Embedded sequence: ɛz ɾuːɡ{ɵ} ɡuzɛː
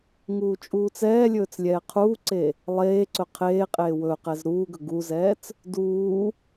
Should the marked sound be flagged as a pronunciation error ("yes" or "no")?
no